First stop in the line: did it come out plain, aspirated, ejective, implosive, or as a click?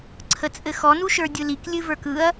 click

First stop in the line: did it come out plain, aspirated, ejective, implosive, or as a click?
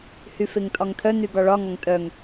ejective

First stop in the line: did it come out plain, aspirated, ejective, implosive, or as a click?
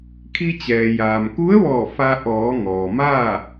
aspirated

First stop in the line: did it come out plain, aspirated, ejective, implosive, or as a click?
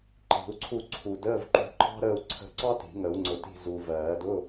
click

